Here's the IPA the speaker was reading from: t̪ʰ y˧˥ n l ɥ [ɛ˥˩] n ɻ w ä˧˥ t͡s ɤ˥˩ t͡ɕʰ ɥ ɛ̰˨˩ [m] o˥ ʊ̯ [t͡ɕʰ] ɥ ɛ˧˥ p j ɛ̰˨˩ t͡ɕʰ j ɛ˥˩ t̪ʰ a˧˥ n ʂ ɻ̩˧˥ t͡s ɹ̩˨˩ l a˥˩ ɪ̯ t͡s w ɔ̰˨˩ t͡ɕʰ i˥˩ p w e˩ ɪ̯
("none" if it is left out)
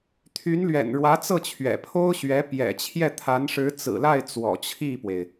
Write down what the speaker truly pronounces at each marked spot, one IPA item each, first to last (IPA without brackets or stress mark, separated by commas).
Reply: ɛ̰˨˩, pʰ, ɕ